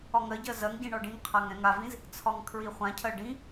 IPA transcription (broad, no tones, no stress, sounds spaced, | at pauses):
ɒ ŋ ɜ ɟ ɜ z ɜ ŋ ɟ ĩ ɳ ɒ ɖ ĩ ŋ qʰ a ŋ ɛ̃ ŋ a v ĩ z | t͡sʰ ɒ ŋ kʰ ɹ i χʷ ã cʰ ɜ ɖ ĩ